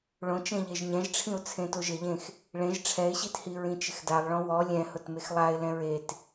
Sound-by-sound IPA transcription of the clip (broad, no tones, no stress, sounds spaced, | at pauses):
ɭ õ t͡ʃ ẽ ʎ e ʒ ɲ ɛ̃ ʒ ʈ͡ʂʰ ĩ ʊ̯ t͡sʰ ẽ t o ʒ ɪ ʎ ẽ x | ɭ ẽ ʒ ʈ͡ʂʰ ɛ ɪ̯ ɕ i t h i ɹ ĩ t͡ʃ ɪ x d a lˠ ɭ ɔ̃ w ɔ lʲ ɛ̃ h ʊ t m e x lˠ a ɪ̯ l ɛ̃ ɹ e t